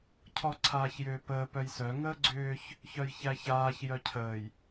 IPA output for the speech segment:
cʰɔǀʰaːçjʏːpəː pœjsœ ŋəːɡ͡ǀʏːç | çœjçæçaːç jœcʰəːj

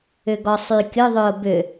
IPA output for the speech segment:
ʏɡɔsˤykʲʊ ðˤʊːbʏ

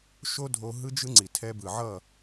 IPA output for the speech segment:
ʃo˦dʱo˧ ɦɯ˦d͡ʒɯ˦ŋ͡ǀi˨ tʰɛ˧bɯ˨ʕʌ˦˨

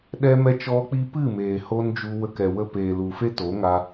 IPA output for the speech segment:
ɗɛ˧mɛ˧t͡ʃɔ˧k͡pi˧ pɨ˦˨meː˨ho˧n d͡ʒu˧wə˧kɛ˨ wə˧peː˨lu˨fe˦ to˨˦ŋa˧

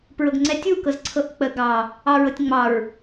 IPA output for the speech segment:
pɹɤɡŋ͡ǀɛtʲu kɤzǀʰɤʔk͡pə ɡɑ | ɑɹɤtʲŋ͡mɑɹ

